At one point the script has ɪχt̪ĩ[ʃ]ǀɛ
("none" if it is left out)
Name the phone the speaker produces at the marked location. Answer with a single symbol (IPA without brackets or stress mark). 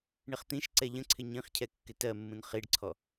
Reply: ʃ